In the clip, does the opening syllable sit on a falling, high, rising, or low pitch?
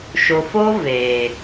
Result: low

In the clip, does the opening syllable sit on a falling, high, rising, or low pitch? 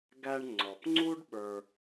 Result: high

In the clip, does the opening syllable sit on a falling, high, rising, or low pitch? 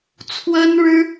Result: high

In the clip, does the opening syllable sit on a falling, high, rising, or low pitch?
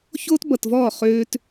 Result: high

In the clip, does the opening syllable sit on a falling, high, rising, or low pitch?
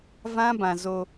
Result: high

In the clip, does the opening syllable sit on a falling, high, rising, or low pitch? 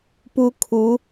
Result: high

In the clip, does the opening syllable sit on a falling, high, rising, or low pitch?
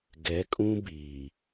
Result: rising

